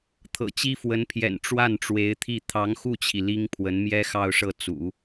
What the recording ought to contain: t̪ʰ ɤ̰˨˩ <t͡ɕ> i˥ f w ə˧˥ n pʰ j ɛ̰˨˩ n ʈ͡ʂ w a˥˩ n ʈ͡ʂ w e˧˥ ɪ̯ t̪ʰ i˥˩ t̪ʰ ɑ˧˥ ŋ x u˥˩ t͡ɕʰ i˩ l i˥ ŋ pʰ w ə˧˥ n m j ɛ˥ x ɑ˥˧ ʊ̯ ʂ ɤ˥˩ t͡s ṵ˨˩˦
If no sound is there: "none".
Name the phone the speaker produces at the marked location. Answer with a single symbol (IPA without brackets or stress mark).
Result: t͡ɕ